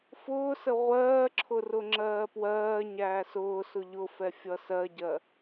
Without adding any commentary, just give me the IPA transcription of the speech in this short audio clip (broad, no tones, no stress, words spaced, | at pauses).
fʊːsə ʁʷɜːǁʰʊrʊŋ͡ǁɜː pwɜːɲæː sʊːsʊ ʎʊfɛfʲʌ sɜɟɜ